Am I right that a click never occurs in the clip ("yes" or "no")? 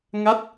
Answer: yes